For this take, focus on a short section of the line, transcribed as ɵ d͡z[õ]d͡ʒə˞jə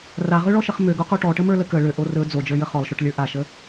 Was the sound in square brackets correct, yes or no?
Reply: no